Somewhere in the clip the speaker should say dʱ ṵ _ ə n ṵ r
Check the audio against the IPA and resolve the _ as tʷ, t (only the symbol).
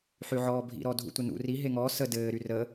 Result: tʷ